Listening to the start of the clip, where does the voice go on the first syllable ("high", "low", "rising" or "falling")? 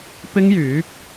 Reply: high